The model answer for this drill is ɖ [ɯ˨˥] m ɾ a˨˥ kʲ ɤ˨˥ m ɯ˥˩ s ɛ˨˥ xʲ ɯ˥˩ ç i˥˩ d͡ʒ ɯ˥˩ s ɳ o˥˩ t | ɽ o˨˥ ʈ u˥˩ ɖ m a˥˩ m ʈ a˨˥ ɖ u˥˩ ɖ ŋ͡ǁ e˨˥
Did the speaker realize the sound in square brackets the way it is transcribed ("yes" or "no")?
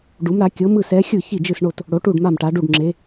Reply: no